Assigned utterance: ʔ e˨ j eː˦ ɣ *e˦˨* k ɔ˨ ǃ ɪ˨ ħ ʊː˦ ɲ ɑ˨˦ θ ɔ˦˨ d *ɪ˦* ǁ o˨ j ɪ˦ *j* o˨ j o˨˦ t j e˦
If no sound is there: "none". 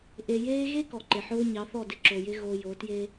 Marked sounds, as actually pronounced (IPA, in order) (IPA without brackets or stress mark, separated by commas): e˦, ɪ˦, ɣ